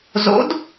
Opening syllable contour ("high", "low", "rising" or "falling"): rising